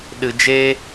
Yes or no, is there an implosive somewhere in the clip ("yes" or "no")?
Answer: yes